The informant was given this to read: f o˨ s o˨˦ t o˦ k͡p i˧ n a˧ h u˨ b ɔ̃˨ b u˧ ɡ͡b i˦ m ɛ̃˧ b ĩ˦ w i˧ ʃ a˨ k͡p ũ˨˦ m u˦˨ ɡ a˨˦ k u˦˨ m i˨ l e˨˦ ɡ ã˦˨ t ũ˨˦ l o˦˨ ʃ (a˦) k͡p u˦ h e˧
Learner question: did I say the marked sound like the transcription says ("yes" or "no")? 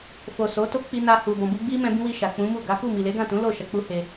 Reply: no